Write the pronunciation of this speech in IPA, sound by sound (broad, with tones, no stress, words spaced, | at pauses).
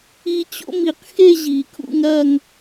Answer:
i˦˥ t͡ɕo̰˥˧mi˨˩˦qxe˥˧ ʑi˨˩˦kʰṵ˥˧ŋ ɾɐ˥˧ŋ